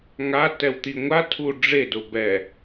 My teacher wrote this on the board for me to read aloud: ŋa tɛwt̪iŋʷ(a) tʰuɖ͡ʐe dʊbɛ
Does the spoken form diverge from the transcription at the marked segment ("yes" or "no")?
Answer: no